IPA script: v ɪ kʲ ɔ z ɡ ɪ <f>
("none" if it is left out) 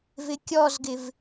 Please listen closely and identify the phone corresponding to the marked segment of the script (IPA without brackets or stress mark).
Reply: v